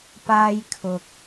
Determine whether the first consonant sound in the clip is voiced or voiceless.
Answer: voiceless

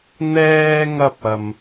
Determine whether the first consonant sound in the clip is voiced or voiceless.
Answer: voiced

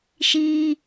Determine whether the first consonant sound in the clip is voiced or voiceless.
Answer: voiceless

